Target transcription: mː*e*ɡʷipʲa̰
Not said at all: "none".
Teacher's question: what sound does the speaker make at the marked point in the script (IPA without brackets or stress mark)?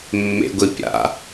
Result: ḛ